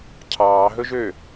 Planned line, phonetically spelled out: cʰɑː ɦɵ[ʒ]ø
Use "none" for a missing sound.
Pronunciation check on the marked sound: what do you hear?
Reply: ʒ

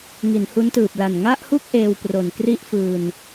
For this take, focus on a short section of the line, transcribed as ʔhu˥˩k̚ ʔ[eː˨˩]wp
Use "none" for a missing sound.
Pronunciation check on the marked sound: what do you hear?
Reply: eː˧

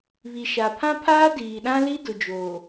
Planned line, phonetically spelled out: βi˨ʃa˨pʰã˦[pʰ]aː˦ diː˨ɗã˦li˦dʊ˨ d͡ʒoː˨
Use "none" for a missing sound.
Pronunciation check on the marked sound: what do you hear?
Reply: pʰ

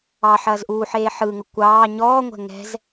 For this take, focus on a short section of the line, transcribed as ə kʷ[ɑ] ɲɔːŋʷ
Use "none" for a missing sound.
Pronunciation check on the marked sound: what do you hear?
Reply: ɑː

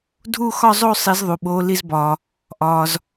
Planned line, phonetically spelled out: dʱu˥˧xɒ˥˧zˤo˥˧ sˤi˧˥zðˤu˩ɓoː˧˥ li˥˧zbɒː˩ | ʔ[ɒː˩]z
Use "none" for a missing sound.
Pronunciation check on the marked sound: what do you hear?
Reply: ɒː˩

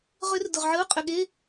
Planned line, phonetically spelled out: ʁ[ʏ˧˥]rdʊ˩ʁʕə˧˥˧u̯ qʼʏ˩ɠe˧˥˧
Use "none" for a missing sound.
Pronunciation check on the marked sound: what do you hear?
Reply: ʏ˧˥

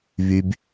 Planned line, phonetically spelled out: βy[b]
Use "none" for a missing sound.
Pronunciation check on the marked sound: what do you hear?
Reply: b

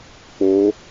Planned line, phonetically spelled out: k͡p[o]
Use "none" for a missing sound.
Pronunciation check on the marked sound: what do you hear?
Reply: o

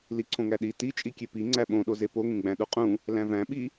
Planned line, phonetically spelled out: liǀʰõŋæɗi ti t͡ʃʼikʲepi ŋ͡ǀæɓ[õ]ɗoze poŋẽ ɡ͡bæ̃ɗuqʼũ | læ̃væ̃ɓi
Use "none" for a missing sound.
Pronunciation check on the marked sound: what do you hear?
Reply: õ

